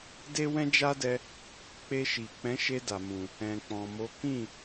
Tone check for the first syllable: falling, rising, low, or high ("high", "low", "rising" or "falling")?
high